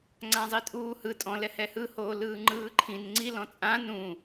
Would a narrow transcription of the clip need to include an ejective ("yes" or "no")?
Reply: yes